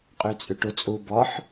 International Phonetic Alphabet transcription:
qʼ y t͡sʼ y ʈ u t͡sʼ u b ɔ ħ

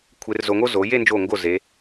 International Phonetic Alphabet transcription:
kʷʰ e˧ r z o˧ ŋ o˥ z o˩˧ j e˥˧ n d͡ʒ o˧˩ ŋ ɡ o˧˩ z e˩˧

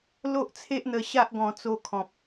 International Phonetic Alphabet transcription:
l o˦ ʔ t͡sʰ e˦ ʔ n̪ ə˧ ɕ a˦ ʔ ɡ ɔ̃˧ t͡s o˧ kʰ ɔ̃˨ p̚

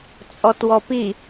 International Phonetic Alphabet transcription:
t͡sʼ ɔ t w ɔ p i

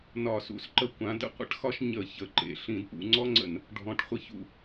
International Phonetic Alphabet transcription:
n ɒ˨˩ s ṵ˩˧ s ǃ ə˧˩˧ kʷ ã˩˧ d ə̰˦ qʷ ə̰˦ ʈ x ɒ˦ ʃ ɲ ə˧˩˧ ç ə˨˩ ǃ ḛ˨˩ ɬ ĩ˧˩˧ d p ṵ˩˧ ŋ͡ǀ ɔ˦ ŋ͡ǀ ə̰˧˩˧ n | ɖʱ ɔ̃˩˧ ʈ χʷ ɪ˨˩ ç ṵ˨˩

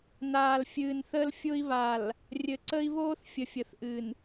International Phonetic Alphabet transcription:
n aː˨ l fʲ ɨː˨ n θ əː˦ l fʲ ʊ˦ i̯ β a˨ l | rʲ ɘ˨ ǀ ə˦ i̯ β oː˦ θ fʲ ə˨ fʲ ə˨ θ ʔ ɨ˨ n

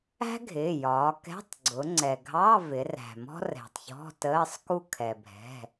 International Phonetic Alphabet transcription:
æ̤˥ ɡʱ ɪː˩˧˩ j ɒː˩˧ k ɛ̤˧˥˧ tˤ ɡ͡ǀ ʊ˩˧ ŋ͡ǀ ɛ˩ ɡʱ ɑ˧˥˧ v ɪ˩˧ r æ̤˩ m ɔ̤˥ r ɛ̤˩ tˤ ç ɔ̤˧˥˧ t əː˧˥˧ sˤ k u˥˧ kʰ ɛ˩ bʱ ɛ̤˩˧˩

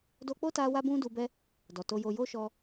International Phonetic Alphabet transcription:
d o˧ k͡p o˦ t a˧ w a˦ b ũ˦ d u˧ b ɛ˦ | d ɔ˨ t o˧ j o˧ j o˦ ʃ ɔ˧

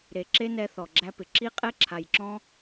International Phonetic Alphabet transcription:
ɾ e˨ ǁ e˦ n ɛ˧ θ ɔ˨ ɡ͡ǁ æ˦ p ɪ˨ ǁ i˦ qʼ ɛ˦ ǁʰ a˨ j ǁ ɔ̃˦

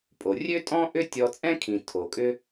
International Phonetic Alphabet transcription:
pʼ o˩ rʲ ø˥ tʼ ɔ̃˥ ʔ ʏ˥ tʲ ɔ˧ t͡sʼ ɛ̃˥ kʰ ĩ˩ tʰ o˩ kʼ ʏ˥

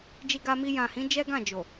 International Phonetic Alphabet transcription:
d͡ʒ i˧ ɡ a˧ m i˧ j ã˨ h ĩ˨˦ d͡ʒ ɛ˦ ɡ ã˦˨ d͡ʒ o˨

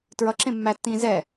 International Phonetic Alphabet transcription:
t ɹ ʌ ǁ ẽ mː æ tː ĩː z ɛ

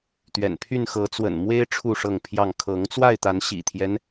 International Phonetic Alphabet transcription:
t̪ ɥ ɛ̰˨˩ n pʰ y˥˨ n x ɤ˨˦ t͡s w ə̰˨˩ n m w e˦ ɪ̯ ʈ͡ʂʰ u˥˨ ʂ ɤ˥˨ ŋ pʰ j ɑ˥˨ ŋ kʰ ɤ˨˦ ŋ t͡s w a˥˨ ɪ̯ t̪ a˨˦ n ɕ ḭ˨˩ t̪ʰ j ɛ˦ n

